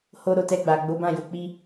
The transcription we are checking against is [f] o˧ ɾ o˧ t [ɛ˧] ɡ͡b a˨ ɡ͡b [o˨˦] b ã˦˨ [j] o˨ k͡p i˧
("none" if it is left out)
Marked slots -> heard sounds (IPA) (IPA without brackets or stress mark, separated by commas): h, ɛ˧, o˨˦, j